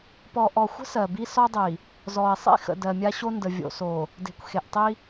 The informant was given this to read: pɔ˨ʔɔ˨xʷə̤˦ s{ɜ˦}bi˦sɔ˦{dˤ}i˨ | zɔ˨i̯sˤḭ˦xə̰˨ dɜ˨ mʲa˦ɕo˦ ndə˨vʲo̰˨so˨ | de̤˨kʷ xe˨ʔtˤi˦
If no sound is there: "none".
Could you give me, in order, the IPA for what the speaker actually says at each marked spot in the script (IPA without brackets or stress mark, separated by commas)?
ɜ˨, dˤ